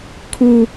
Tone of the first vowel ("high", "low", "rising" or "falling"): high